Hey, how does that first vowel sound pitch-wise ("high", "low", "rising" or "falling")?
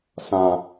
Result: low